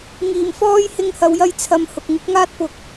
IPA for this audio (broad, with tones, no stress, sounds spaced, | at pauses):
ŋ iː˨˩ m f ɔː˥ j h ɪ˧ ŋ h ɐ˨ w j ɐ˧ j t͡sʰ ɐ˨ m h ʊ˨ k̚ ŋ ɪ˨˥ k̚ ŋ aː˥ t̚ p ʊ˧ k̚